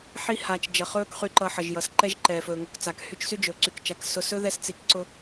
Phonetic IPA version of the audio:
ħ i˦ h aː˨ t͡ʃ d͡ʒ ʌ˨ χ ɵː˦ k χ y˨ ǃ ʌ˨ ħ ʌ˩ ʒ j ʌ˩ s ǃ ɛ˦ ʒ ǃ ɛː˩ f ɵː˩ ŋ ɵ˨ k t͡s a˩ k h y˦ t͡ʃ s y˥ d͡ʒ ɵː˩ ǀ y˨ k t͡ʃ a˨ k s ʊ˨ s ɵ˦ ð ɛ˦ s t͡s i˨ k ǀ ʊ˦

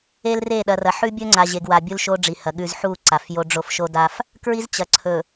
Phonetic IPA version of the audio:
e˦ l r e˦˨ ɗ ɐ˨ r ɐ˨ ħ ʉ˦ bʲ ɵ˦ ŋ͡ǀ a˨ ʑ e˨ ɡ w a˨ bʲ u˦ l ʃ o˦ ɖ͡ʐ i˨ h ɐ˨ ɠ ʉ˨ z ħ u˦˨ ǀ a˨ f j o˦ ɖ͡ʐ o˦ f ʃ o˦ d a˦ f | k ɹ i˦ z t͡ɕ ɐ˨ ǀʰ ɵ˨

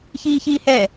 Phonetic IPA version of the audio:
ç iː ç iː h ɛ

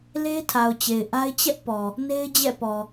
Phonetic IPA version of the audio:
l e˦ tʰ a˨ ʊ̯ t͡ɕ e˨ ɪ̯ ʔ a˦ ɪ̯ t͡ɕ ɛ˦ ʔ p ɔ˨ | n e˦ ɪ̯ d͡ʑ ɛ̰˦˨ p ɔ˨

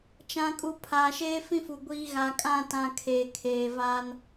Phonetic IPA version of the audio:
t͡ʃ ã˨ kʼ u˨ pʰ aː˨ ʃ eː˦ f ĩ˦ f u˨ ɡʷ iː˦ ɣ a˨ kʼ ã˦˨ t ã˨ kʰ eː˨ kʰ eː˨ v aː˦ n

